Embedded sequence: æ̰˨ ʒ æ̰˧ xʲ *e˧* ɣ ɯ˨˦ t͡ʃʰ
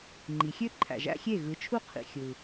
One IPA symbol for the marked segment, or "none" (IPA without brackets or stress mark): e˦˨